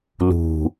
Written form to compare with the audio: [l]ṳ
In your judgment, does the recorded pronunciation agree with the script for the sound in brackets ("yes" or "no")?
yes